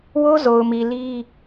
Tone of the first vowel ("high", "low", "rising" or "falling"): high